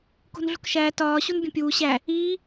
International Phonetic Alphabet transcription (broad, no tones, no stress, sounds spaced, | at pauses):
k o̤ n ɮ ṳ k ʃ æː t ɒː ɕ u n bʲ õ pʲ uː ɕ æ | iː